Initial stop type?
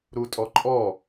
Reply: ejective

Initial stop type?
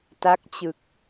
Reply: plain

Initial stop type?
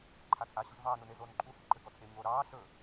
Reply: click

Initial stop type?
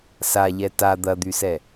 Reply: plain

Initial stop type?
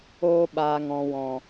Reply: implosive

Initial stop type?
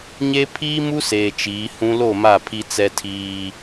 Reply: aspirated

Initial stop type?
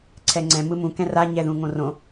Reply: click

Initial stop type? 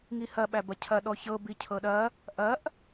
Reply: implosive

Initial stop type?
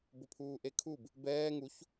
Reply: plain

